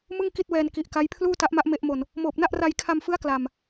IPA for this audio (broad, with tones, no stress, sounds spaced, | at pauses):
m ɯ˥˩ ŋ k i˥˩ t̚ w ɛː˧ n k i˨˩ ʔ k a˦˥ j pʰ l uː˥˩ t a˦˥ ʔ m a˦˥ ʔ m e˦˥ ʔ m o˧ n | m oː˨˩ p̚ n a˥˩ ʔ r a˧ j kʰ a˧ m f ɯ˦˥ a̯ k l a˨˩ m